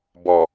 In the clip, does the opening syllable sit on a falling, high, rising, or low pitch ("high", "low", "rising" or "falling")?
low